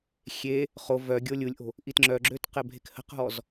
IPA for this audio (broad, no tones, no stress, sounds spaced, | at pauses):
xʲ e | χ o v œ ɡʲ o lʲ u lʲ ʔ o̤ | ʔ i t ŋ͡ǁ œ ɡ͡ǁ ø t q ɛ bʱ e k h ə̤ q ɦ ɔ z